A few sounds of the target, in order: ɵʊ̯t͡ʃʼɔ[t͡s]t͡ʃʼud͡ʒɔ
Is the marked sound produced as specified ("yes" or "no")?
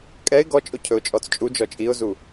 yes